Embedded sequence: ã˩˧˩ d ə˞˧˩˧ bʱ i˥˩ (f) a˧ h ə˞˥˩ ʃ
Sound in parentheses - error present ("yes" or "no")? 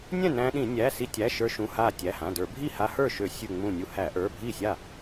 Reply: yes